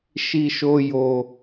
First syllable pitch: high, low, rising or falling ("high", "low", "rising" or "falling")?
high